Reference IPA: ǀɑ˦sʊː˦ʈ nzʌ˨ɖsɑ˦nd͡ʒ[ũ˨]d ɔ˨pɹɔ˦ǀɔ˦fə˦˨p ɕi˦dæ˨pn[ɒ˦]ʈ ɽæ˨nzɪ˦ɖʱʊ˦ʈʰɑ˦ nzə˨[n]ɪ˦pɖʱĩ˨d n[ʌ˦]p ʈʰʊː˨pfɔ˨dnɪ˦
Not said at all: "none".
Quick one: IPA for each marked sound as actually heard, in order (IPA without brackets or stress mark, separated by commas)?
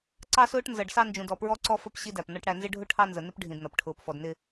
ũ˨, ɒ˦, n, ʌ˨